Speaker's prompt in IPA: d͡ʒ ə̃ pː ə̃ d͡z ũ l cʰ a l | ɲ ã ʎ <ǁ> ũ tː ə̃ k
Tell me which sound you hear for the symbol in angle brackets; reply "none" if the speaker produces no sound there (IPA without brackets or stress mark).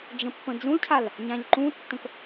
ǃ